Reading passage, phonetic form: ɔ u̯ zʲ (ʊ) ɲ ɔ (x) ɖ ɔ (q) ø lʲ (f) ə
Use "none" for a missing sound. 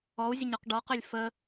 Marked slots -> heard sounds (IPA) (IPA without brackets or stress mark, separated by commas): ə, q, q, f